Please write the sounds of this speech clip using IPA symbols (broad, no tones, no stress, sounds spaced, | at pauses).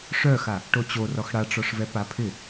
ʂ œ x a | ʈ o t͡ɕ o r ɔ x ɽ a ʈ͡ʂ ɔ ʂ v ɛ p a pʰ ɪ